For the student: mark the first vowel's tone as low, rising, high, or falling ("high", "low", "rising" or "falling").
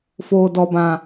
low